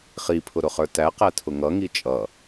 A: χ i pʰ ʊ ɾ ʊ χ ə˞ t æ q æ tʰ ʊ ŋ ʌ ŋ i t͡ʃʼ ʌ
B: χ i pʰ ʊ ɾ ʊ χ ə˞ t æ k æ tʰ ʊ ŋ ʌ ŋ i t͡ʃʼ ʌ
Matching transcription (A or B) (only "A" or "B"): A